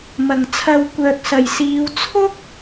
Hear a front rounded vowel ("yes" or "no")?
yes